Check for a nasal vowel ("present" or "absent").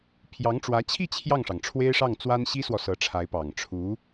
absent